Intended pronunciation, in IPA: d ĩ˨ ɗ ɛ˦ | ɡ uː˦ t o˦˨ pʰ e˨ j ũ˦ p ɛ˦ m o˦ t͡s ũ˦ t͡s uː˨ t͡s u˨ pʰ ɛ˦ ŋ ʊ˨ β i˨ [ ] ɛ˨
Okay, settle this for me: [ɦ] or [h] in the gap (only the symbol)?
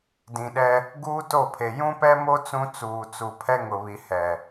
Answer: h